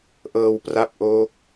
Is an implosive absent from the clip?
yes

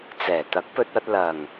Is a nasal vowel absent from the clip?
yes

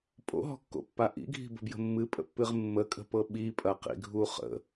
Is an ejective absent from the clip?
no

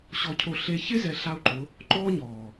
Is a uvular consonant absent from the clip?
yes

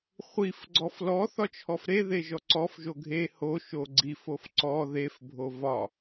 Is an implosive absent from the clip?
yes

